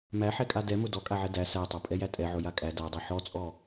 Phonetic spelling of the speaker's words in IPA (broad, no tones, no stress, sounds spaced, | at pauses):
m æ ħ ɛ kʼ a d ɛ m ʊ d ɔ kʼ a ʕ ɛ d æ s æ tˤ a pʼ ɛ j æ tʼ ɛ ʕ ʊ j a kʼ æ d a dˤ ɛ ħ ɔ t͡sʼ ɔ